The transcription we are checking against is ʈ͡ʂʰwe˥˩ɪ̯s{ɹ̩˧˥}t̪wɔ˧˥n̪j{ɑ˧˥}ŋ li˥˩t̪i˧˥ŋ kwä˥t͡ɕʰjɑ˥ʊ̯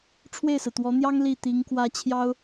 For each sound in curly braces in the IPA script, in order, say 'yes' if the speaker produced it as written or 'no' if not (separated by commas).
no, no